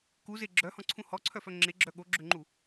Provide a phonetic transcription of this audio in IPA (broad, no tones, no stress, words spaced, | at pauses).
kuze ɡ͡ǁœhɔ̃ǀʰũ hɔǀʰœfœ ŋ͡ǁeɡ͡ǁœ ɠoɡ͡ǁøŋ͡ǃu